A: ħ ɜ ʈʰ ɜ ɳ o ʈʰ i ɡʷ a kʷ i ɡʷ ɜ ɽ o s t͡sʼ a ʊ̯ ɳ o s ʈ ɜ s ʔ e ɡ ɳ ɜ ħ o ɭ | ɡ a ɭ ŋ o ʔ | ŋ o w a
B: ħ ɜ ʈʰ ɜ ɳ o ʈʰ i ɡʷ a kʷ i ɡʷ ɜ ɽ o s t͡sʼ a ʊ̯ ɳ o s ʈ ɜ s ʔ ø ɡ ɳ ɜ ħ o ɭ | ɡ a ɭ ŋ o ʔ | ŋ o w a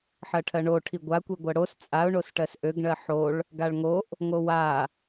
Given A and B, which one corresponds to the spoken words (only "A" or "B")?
B